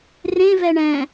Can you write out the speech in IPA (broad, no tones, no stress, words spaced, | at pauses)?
rẽvɛ ɳɛ̃